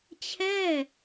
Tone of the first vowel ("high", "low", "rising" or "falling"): falling